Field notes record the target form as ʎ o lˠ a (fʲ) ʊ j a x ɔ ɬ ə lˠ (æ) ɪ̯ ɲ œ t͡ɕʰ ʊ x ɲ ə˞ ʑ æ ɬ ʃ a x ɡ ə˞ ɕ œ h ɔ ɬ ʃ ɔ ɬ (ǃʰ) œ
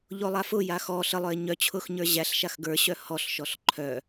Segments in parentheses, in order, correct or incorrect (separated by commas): incorrect, incorrect, correct